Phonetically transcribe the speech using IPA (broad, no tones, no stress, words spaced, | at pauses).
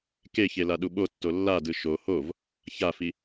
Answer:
keçe laɗuɓotːo lːadɯ ʃo hov | çafi